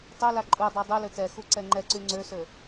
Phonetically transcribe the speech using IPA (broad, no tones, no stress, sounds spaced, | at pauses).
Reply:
tˤ ø l a ǃʼ u dˤ a dˤ u l ø t ɛ x u ǀ ɛ ŋ͡ǃ ɛ ǀ y ŋ͡ǀ ø s ø